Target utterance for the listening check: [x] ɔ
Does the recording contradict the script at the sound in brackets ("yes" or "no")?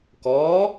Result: yes